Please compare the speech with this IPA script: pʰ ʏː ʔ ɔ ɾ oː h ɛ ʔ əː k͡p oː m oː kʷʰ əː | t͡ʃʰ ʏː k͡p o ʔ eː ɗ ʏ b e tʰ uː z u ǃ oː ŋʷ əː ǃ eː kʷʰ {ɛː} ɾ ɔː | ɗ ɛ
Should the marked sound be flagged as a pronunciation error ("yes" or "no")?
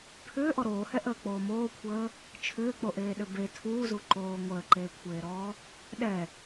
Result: yes